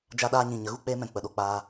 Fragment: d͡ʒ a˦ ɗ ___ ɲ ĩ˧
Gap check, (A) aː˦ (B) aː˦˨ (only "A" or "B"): A